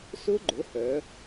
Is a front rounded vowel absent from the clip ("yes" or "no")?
no